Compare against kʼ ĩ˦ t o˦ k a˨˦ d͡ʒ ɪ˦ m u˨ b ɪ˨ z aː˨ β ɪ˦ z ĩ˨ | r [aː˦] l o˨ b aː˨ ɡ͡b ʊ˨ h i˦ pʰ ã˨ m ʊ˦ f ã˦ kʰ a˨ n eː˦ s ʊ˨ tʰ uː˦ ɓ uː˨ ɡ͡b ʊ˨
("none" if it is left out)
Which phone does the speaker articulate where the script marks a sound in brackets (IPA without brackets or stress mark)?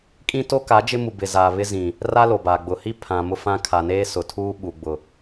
a˦